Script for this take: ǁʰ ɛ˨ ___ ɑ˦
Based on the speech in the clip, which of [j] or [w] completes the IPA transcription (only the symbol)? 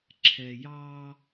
j